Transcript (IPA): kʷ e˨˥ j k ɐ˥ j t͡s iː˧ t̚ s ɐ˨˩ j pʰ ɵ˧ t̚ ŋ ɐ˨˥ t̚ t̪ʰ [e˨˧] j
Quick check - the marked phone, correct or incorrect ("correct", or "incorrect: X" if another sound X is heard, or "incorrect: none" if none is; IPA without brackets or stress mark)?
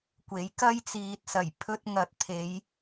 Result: correct